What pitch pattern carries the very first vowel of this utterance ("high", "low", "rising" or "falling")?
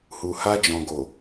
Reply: low